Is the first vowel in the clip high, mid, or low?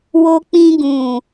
mid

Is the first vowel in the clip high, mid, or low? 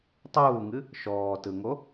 high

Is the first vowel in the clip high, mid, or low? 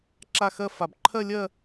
low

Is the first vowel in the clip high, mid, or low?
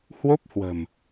mid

